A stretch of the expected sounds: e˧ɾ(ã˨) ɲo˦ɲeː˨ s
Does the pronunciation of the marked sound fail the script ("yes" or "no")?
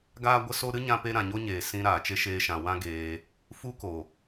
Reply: no